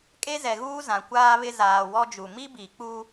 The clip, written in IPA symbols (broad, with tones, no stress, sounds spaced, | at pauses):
kʼ e˦ z ɛ˨ ɣ uː˦ z ã˨ kʷ aː˦ β ɪ˦ z aː˨ w ɔ˦ d͡ʒ u˨ m i˦ b i˨ k͡p u˦